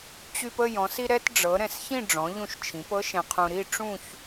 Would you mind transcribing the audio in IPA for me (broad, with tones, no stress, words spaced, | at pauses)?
t͡ɕy˧pə˥˧ jɔ̃˩˧s i˧ɾɛ˧t ɖ͡ʐɤ˩˧ ɾɛ̃˧˩sçĩ˥˧ ɖ͡ʐɔ̃˩˧ʎũ˧˩ʃt͡ʃʰĩ˩˧p ɤ˥ʃɛ̃˧qʰũ˧ ɾi˥˧ ʈ͡ʂũ˥˧ç